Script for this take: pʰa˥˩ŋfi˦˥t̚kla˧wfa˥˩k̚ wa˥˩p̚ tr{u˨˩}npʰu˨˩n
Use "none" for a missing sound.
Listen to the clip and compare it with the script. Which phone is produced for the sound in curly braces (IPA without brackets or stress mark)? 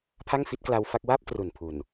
u˨˩